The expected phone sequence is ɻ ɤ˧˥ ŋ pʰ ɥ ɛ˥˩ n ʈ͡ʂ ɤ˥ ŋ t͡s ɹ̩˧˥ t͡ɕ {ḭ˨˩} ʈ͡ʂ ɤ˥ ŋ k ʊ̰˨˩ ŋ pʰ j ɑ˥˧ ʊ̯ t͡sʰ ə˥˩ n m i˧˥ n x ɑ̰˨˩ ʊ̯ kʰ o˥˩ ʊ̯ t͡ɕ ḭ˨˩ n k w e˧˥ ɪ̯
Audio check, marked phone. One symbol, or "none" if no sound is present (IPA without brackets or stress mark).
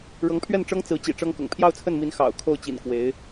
ḭ˨˩